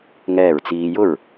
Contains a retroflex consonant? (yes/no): no